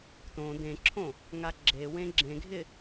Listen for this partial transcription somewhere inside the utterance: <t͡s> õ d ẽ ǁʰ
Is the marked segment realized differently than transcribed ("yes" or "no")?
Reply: yes